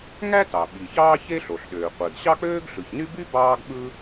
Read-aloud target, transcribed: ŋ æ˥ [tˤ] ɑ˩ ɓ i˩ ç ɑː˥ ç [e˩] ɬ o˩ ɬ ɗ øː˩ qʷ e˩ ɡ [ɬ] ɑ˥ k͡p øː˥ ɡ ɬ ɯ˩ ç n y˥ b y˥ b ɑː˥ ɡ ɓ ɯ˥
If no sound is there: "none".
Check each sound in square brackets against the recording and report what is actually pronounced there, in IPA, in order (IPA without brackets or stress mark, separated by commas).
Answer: t, e˥, ɕ